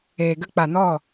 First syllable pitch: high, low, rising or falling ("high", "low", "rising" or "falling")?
low